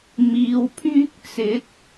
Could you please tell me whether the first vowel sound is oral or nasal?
oral